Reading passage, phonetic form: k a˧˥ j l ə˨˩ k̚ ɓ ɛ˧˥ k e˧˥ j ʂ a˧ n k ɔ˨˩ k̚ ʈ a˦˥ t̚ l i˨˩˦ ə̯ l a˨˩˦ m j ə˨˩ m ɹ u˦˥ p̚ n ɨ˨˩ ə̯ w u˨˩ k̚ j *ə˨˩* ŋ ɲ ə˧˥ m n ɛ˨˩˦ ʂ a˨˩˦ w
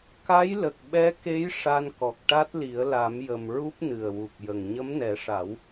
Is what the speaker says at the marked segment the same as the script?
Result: yes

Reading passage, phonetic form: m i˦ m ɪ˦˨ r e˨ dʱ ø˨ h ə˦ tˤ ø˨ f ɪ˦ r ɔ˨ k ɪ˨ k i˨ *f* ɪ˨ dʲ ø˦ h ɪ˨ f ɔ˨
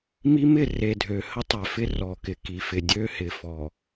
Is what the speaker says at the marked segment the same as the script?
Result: yes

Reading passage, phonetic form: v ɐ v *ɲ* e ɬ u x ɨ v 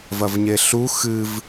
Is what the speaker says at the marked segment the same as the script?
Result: yes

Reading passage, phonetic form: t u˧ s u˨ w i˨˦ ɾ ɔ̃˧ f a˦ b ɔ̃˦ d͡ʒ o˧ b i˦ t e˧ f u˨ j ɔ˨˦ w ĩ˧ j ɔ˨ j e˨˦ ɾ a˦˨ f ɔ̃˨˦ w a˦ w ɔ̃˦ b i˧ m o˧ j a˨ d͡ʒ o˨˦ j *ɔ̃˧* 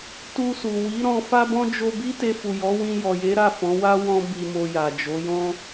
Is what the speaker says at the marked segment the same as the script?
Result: no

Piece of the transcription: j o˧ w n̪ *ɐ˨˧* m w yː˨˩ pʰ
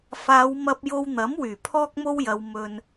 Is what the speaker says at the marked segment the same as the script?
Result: no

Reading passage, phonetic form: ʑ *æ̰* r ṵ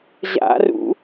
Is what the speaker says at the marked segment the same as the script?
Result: no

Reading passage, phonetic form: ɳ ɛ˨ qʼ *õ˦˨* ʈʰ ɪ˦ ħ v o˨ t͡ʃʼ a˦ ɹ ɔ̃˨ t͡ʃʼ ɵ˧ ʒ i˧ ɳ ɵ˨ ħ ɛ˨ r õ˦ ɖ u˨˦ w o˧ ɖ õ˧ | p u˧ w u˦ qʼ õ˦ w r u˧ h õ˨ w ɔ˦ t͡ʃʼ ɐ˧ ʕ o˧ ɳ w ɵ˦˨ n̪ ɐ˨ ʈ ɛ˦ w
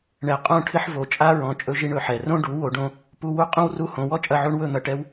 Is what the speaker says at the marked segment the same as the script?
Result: yes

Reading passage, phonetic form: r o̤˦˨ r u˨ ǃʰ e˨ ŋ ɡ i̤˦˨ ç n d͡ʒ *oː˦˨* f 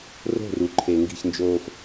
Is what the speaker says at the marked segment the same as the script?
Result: no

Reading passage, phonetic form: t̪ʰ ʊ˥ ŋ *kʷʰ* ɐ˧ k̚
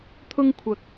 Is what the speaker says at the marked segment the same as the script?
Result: yes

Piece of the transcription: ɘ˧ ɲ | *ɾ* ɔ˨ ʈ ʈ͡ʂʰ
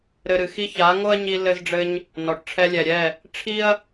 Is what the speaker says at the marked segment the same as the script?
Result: no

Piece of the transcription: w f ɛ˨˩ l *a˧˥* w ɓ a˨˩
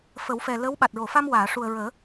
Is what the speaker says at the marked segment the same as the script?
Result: no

